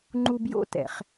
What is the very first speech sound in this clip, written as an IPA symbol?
ŋ͡ǃ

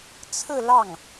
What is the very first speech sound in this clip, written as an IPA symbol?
t͡sʰ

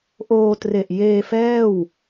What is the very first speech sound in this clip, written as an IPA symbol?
ʔ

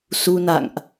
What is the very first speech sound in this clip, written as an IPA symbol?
s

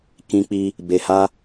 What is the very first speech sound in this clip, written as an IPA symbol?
k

